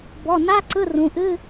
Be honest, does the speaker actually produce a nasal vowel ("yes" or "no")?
yes